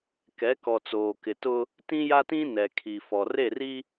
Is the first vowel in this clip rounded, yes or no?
no